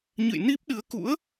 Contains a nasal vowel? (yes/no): no